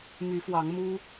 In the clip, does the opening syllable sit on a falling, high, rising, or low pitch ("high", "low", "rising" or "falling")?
rising